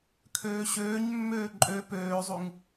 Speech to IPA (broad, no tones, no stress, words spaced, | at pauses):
kʰøːɕøːɲmːøː ǃʼø pøːzˤuŋ